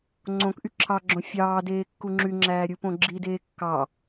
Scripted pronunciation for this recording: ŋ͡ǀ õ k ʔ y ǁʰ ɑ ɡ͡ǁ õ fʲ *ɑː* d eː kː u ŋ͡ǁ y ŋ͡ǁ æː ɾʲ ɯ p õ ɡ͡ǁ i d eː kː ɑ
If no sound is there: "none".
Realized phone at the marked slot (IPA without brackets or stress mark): ɑː